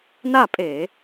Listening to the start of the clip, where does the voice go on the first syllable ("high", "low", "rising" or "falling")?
falling